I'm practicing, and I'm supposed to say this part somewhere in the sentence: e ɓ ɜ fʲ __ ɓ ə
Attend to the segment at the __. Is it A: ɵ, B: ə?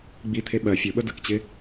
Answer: A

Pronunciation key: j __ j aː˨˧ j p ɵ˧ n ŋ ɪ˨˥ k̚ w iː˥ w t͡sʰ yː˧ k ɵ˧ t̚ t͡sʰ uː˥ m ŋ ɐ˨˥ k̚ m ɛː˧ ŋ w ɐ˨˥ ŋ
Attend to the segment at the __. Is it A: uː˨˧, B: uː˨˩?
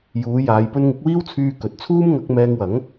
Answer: A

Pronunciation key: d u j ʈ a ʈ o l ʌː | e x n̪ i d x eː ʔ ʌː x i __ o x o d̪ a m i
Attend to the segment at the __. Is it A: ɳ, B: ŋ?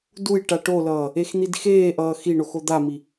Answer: A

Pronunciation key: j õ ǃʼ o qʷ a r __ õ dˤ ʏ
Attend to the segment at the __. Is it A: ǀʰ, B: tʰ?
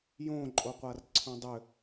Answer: A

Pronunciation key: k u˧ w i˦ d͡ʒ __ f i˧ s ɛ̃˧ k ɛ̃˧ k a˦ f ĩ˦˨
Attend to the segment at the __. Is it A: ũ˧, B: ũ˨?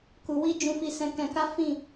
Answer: A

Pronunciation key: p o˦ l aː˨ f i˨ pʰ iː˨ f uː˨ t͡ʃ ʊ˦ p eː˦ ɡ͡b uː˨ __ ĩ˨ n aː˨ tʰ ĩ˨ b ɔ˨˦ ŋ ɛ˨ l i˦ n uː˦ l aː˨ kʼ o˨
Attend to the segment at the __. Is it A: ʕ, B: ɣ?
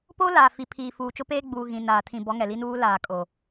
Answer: B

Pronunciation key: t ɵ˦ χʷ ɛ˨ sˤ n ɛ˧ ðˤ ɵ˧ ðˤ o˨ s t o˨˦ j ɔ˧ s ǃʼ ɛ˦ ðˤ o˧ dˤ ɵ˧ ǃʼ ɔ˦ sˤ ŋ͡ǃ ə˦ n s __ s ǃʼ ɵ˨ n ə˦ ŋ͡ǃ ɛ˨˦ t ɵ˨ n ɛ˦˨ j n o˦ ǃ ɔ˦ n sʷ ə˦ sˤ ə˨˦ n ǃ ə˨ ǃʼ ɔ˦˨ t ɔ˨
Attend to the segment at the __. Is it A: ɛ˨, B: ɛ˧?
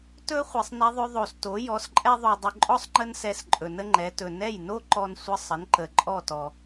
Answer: B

